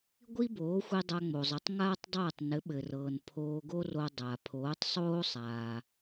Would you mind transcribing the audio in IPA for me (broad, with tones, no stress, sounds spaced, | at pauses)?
ɡʷ i˥ b oː˩˥ xʷ i˧ dˤ a˧ ŋ͡m o˩ zˤ ɘ˩˥ tˤ ŋ aː˥ tˤ dˤ ɤː˥˩ tˤ n ɘ˩˥ ɓ ɘ˩ r ɤː˩ n pʰ oː˧ ɡ o˥ r o˧ dˤ a˩ pʰ oː˩˥ tˤ sˤ oː˥ sˤ aː˩